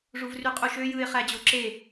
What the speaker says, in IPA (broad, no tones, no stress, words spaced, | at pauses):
ʐuvryqʼuʃø jɯɪ̯ χæd͡ʑoǁe